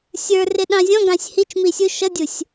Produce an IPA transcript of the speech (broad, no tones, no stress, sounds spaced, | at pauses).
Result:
sʲ ə˞ r ɪ ɗ ɑ̃ zʲ ɔ̃ ɡ ɑ̃ sʲ h i t͡ʃ m i sʲ u ʃ ʌ dʲ u sʲ